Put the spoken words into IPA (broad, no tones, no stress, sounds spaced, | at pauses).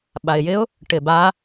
ɓ a ɪ̯ j ɪ ʊ̯ | ʈ ɪ b a